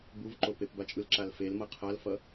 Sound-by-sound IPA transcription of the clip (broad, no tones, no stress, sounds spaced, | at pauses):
b u v ǃ o p e p b a t͡ʃʼ ɯ l ǁ a l f e l m ʌ qʰ a l f ʌ